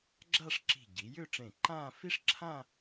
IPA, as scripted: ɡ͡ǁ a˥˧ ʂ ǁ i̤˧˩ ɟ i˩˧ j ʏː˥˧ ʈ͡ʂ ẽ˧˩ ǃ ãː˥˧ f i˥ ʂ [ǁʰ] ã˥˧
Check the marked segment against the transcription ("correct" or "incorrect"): correct